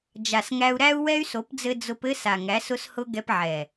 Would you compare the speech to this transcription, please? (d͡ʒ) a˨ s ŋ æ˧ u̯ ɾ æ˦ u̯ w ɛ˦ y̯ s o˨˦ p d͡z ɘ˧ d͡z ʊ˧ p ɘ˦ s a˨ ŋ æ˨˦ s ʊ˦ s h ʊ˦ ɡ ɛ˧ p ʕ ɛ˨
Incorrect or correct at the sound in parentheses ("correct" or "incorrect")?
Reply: correct